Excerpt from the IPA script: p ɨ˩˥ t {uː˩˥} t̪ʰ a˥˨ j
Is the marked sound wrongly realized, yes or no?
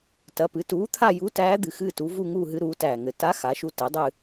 no